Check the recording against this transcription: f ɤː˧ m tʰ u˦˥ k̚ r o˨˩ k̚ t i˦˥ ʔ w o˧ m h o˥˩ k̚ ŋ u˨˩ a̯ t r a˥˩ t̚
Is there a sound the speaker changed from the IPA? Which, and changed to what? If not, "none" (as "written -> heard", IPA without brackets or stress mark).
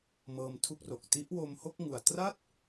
f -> m